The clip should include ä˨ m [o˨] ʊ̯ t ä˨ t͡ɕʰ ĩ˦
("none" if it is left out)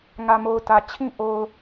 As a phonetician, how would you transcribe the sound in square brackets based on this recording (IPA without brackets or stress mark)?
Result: o˨